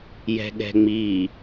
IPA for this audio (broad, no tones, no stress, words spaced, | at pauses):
jɛ̤ɠɛ̤ŋ͡mi